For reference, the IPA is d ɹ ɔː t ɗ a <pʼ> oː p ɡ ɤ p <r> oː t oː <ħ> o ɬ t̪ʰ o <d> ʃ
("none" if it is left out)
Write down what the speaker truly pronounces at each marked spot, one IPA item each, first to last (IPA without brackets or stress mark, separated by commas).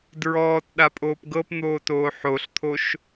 pʼ, n̪, ħ, none